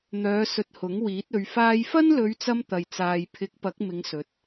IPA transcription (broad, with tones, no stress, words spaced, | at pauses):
n̪œː˨˧ sɵ˧t̚hʊ˨˥ŋ wiː˨˥t̚ɵ˨˧ɥfaː˥j fɐ˥nlɵ˨˧ɥt͡sɐ˧m t̪ɐ˨jt͡saː˨jpʰɪ˨˥k̚ pɐ˨˥k̚ mɪ˨˧ŋsɵ˨˥t̚